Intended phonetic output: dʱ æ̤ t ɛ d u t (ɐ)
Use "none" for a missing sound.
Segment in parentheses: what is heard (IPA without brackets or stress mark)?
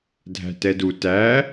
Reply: æ